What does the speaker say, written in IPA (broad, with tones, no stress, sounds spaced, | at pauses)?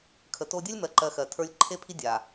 kʰ ə˨ t o˦ dʲ ɜ˦ lʲ m ɜ˨ ǃ ɜ˨ x ɜ˨ tʰ ə˞˦ lʲ ǃʰ e˦ pʰ i˦ dʲ a˨